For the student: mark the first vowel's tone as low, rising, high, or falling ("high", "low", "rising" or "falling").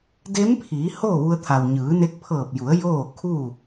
rising